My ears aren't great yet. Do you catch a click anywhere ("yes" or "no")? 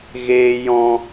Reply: no